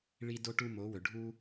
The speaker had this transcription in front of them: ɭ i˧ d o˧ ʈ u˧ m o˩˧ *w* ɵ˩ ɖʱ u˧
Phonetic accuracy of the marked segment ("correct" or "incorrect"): correct